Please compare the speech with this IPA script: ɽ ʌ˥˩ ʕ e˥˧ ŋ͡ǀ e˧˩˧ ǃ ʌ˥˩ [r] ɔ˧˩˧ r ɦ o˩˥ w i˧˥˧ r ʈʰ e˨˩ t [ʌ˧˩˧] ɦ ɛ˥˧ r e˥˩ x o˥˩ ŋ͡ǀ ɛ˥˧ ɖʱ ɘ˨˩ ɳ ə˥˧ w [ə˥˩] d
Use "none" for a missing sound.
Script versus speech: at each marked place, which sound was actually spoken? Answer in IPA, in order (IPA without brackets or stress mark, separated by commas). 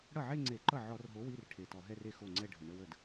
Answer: ʕ, ɔ˧˩˧, ə˥˩